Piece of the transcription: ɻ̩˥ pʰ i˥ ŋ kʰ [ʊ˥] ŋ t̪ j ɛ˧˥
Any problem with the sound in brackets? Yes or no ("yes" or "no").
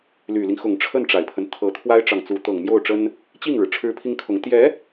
yes